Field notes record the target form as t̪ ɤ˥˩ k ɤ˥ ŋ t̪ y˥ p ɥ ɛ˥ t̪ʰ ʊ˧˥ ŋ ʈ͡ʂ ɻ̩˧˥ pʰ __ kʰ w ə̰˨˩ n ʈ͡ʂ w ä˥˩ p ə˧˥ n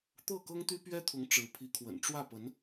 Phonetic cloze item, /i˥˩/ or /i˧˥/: i˧˥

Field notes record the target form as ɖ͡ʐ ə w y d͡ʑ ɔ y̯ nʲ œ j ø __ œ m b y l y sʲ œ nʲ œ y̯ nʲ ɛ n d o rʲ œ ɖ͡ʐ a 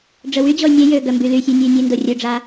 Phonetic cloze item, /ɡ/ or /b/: ɡ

